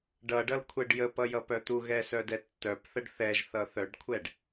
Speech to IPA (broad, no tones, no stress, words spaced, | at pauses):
ɖʌɖʌlkʷʰɛɖ jəpʌjʌpœ t̪uɣɛsœdɛ tːœpθəɖ θɛʒθʌ θœɖkʷʰɛɖ